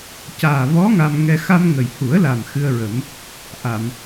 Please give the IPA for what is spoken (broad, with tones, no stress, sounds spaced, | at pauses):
c aː˨˩ v ɔ˧˥ ŋ a˧ m ŋ ɛ˧ x a˧ m ŋ ə˨˩ j h u˨˩˦ ə̯ l a˨˩ m x ɨ˧ ə̯ ɹ ə˨˩˦ m | ʔ a˨˩˨ m